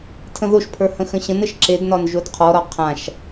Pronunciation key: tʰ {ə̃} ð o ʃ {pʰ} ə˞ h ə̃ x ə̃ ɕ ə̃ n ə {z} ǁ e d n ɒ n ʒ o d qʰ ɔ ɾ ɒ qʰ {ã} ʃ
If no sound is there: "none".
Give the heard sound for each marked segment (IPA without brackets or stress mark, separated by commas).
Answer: ə̃, pʰ, ʃ, ã